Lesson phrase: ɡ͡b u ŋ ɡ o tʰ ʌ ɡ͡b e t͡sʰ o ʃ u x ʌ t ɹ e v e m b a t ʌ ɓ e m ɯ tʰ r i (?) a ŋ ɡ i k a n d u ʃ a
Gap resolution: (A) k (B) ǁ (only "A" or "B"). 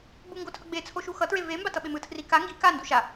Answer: A